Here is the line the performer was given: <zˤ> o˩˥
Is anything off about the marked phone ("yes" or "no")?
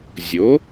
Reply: yes